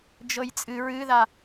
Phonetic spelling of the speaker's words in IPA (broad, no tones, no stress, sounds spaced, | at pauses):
d͡ʒ ɤ j t͡sʼ ɨ ɹ ɨ ð a